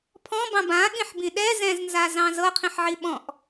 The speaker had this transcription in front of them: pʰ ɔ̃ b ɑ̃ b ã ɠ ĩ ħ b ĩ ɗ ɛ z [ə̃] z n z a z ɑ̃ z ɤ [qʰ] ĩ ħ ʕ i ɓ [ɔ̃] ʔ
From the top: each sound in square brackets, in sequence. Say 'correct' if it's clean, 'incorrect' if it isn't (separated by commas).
incorrect, correct, correct